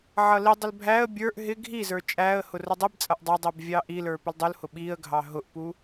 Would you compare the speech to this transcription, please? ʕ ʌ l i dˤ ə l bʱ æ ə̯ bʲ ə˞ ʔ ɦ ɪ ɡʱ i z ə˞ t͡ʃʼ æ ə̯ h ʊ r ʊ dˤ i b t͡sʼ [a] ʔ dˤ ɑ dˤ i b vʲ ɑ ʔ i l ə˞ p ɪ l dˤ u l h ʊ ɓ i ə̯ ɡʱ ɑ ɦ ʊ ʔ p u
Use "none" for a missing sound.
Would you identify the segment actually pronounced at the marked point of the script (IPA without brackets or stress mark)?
ʌ